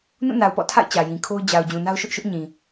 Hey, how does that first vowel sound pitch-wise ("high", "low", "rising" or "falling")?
falling